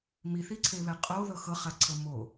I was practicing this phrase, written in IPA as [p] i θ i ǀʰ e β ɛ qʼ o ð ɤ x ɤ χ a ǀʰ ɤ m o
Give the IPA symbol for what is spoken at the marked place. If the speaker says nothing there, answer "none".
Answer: m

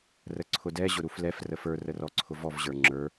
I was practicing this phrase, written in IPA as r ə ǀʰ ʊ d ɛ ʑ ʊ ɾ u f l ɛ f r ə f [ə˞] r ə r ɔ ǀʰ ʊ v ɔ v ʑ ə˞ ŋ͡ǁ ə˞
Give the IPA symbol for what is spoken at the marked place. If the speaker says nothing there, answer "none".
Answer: ə˞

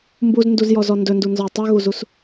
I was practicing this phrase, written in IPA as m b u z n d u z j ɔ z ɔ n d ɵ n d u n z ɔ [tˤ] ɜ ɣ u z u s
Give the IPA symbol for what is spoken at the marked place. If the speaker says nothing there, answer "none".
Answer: tˤ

